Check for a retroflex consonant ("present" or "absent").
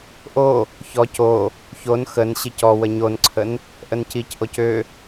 absent